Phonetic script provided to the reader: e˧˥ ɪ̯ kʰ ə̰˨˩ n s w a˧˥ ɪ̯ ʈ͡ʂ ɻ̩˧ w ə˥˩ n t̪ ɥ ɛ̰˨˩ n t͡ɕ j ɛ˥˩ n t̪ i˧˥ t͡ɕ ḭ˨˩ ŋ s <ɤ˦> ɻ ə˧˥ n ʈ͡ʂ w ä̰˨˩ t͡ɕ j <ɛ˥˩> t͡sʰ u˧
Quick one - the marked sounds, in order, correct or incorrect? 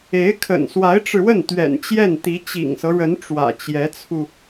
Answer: correct, incorrect: ɛ˧˥

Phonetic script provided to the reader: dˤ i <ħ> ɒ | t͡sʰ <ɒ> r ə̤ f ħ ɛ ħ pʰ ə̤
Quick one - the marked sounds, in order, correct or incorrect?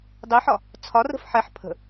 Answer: correct, correct

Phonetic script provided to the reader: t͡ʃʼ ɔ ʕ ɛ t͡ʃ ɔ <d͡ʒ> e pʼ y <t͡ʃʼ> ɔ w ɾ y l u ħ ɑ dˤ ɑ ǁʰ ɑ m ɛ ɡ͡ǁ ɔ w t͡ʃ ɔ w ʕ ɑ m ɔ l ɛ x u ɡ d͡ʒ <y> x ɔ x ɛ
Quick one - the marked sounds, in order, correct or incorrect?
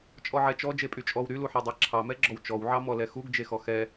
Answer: correct, correct, incorrect: e

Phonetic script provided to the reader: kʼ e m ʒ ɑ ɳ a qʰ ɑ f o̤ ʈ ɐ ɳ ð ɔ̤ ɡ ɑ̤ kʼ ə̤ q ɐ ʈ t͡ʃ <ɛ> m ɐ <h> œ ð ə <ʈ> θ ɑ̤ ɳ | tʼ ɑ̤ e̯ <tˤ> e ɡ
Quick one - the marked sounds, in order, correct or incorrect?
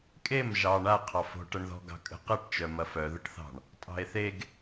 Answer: incorrect: œ, incorrect: f, correct, incorrect: θ

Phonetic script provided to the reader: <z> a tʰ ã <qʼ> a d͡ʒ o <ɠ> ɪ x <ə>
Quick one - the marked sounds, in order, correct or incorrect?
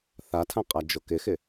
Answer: incorrect: θ, correct, incorrect: k, incorrect: ɪ

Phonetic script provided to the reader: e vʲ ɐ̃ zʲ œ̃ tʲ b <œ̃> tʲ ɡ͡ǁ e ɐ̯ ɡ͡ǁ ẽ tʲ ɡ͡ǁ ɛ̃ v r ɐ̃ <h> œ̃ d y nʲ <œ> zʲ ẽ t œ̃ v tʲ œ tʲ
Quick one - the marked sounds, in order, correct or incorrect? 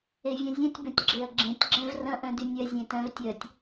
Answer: correct, incorrect: ʔ, correct

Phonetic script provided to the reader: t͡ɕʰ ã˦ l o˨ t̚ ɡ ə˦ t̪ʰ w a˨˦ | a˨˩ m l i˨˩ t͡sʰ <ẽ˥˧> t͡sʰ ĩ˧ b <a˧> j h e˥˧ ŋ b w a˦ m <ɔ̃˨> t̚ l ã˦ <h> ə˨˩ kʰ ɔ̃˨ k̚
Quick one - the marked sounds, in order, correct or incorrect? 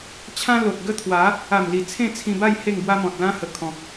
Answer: correct, incorrect: a˥˧, correct, correct

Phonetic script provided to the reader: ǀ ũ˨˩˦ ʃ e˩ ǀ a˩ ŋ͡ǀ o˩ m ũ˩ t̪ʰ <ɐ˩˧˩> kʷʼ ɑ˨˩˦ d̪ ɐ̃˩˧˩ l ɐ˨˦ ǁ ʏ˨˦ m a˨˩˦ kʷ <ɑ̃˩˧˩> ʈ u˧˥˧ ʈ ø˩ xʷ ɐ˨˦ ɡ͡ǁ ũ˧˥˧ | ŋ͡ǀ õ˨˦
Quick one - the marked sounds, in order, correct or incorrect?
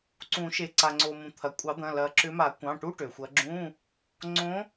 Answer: incorrect: ɐ˩, correct

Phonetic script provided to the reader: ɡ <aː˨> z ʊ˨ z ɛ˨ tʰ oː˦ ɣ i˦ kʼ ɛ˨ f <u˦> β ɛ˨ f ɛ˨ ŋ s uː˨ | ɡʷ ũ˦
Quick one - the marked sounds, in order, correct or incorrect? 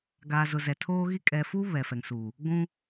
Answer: correct, correct

